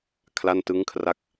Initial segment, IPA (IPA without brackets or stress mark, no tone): kʰ